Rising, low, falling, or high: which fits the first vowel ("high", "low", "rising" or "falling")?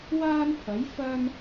high